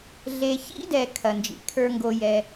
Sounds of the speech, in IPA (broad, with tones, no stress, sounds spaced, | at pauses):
ɮ e˨ ç ḭ˦ d ɛ˨ kʰ ɐ˨ n d͡ʒ ḭ˨ kʰ ə˞˦ ŋ ɡ o˦ j ɛ˦